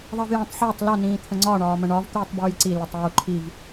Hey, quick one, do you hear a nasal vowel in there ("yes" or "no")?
yes